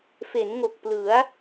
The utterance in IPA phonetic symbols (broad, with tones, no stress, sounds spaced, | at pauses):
f e˩˦ n ŋ o˨˩ k̚ p l ɯ˩˦ a̯